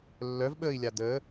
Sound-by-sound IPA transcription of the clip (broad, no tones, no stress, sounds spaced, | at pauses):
lː œ v ɓ əː i̯ lʲ a d əː